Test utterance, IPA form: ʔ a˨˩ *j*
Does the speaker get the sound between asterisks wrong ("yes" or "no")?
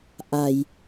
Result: no